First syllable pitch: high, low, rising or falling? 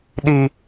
high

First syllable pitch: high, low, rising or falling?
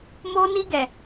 high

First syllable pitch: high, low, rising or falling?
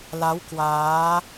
rising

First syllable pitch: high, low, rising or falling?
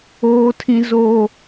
high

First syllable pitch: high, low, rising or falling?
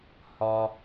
low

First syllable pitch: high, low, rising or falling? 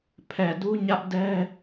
low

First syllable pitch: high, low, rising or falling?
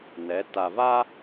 rising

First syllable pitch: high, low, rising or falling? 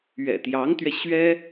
low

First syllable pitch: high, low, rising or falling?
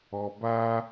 low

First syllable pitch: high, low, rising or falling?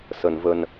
low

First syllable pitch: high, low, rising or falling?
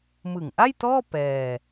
low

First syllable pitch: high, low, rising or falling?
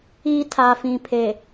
high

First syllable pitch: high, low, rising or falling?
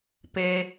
low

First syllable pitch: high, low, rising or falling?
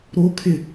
high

